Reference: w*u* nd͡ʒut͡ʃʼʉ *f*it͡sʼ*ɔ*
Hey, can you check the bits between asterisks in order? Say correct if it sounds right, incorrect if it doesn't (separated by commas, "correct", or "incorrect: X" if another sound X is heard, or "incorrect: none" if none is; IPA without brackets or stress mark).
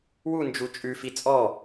correct, correct, correct